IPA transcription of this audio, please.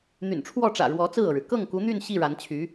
n̪ y̰˨˩ n ʈ͡ʂʰ w ɔ˥˩ ʈ͡ʂ ä̰˨˩ ɻ w ɔ˧˥ t͡s ɹ̩˥˩ ɤ˩ ɻ ɻ̩˩ k ɤ˥˩ ŋ k u˧˥ n̪ y˥˧ n ɕ i˥˩ ɻ a˧˥ n t͡ɕʰ y˧˥

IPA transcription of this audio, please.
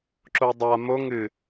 ǁ o dˤ a m o ŋ ɨ

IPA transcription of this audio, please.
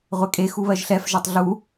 ʁʷ ɛ kʼ e x u β ɜ ʒ ɬ ɛ f ʒ a tˤ ɮ u

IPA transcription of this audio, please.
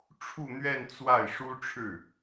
ʈ͡ʂʰ u˥˧ n̪ ɥ ɛ˥˧ n t͡s w a˥˩ ɪ̯ ʂ u˥ ʈ͡ʂʰ ɻ̩˥˩

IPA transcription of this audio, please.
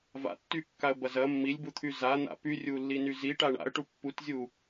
v a̰ tː y kː a ə̯ b ɐ z ɐ mː i lʲ b u t̪ʰ y z a n̪ a̰ p y rʲ u lː i n y z i ʈ a ɳ a̰ ə̯ ʈ u pː u t zʲ u

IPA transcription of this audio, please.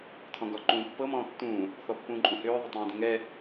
tʰ ɔ̃ ɡ ɒ ǃ ũː pː ɤ m ɔ̃ː tː ũː | θ ɔ pː ũː ǃʼ ũ h ʏː ðˤ ʏ tˤ ũː d ɛ̃ ŋ ɛ

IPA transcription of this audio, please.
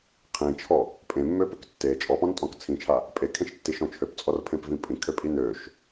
qʰ ĩ t͡ʃʰ ɔ | pʼ ẽ mː ø p ø k tː e t͡ʃʼ ɔ p ɔ̃ n tʼ ɔ̃ k t͡sʰ ĩ t͡ʃʰ a | pʼ e kʰ ẽ ʃ tː i ʃ ɔ̃ t͡ʃʰ ø p t͡sʼ ɔ r pʰ ẽ p v ĩ pʼ ĩ kʰ ø pʼ i n ø ʃ

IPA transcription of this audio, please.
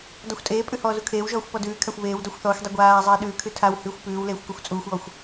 d ɔ xʷ tʼ eː pʼ ʉ h ɔː z u kʰ eː w ʒ ɔː xʷ p ɔ d ʉː kʰ a xʷ β eː w d ɔ xʷ θ ɔː xʷ dˤ u ɡʷ aː zˤ eː ɗ ʉː kʰ ʉ tʰ a w h ʉː xʷ p ʉː w l eː xʷ k u xʷ t͡sʼ uː xʷ ɔː xʷ

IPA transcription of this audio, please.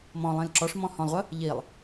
m ɔ̃ lˠ ĩ l ǁ ɔ ʂ m ɔ̃ h ɔ̃ lˠ ʁʷ ə | ʎ i lˠ

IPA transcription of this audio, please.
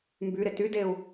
m b y ɾ ɪ t y d e u̯

